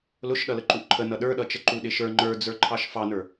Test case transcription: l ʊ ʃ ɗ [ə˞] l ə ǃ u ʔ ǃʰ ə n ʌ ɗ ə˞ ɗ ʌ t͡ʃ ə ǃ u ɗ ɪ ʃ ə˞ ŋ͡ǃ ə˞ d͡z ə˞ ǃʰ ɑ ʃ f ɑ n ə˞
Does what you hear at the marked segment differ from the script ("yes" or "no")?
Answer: yes